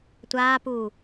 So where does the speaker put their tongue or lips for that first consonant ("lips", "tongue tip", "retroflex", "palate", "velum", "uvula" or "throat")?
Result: tongue tip